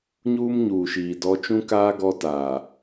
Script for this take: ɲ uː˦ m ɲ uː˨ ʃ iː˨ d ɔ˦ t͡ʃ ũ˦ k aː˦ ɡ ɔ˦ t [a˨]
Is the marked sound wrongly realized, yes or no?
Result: yes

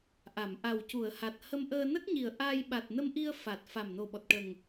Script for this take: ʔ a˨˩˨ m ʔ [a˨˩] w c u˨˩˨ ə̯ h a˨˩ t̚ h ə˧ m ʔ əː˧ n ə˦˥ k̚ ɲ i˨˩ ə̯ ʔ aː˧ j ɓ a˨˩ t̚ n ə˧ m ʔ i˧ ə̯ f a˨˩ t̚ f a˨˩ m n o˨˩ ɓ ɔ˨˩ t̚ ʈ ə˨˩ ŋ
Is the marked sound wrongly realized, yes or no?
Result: no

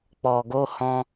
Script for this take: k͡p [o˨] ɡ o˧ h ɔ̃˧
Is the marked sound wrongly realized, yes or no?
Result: yes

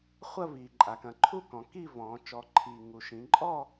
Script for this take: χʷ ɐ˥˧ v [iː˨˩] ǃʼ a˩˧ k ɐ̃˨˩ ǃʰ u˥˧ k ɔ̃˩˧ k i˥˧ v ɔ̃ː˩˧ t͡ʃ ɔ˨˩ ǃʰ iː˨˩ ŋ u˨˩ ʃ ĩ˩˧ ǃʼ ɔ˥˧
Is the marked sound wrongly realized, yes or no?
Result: no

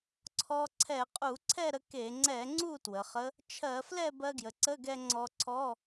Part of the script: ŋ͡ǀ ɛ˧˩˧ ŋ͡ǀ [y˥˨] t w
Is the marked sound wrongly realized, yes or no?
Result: yes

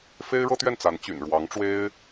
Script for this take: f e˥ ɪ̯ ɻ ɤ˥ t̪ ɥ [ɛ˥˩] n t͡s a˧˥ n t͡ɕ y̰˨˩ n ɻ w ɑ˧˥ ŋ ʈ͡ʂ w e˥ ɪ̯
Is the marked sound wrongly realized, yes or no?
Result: no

